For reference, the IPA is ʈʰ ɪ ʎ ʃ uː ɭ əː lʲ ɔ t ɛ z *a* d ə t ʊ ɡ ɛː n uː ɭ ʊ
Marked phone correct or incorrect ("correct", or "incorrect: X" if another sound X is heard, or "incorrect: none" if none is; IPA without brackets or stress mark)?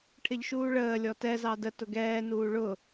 incorrect: ɑ